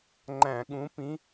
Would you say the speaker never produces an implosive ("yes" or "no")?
no